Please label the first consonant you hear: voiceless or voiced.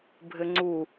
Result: voiced